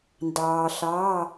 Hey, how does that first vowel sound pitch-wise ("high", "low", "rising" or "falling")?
low